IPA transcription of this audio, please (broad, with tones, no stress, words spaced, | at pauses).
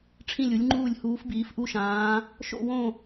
ʈ͡ʂʰĩ˦˨lʲu˨˦lʲŋ͡ǃuː˦˨lʲ huː˨˦fbiː˨˦fʔu˦˨ʃãː˨˦ | ʃo̰˦˨wõ˦˨